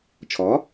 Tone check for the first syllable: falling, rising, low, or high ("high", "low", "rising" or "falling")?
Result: rising